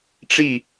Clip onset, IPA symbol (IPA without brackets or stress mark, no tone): ʈ͡ʂ